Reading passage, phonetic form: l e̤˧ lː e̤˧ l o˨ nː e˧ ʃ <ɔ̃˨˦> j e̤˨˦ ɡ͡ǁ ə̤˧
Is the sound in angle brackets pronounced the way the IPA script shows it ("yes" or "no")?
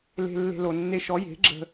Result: no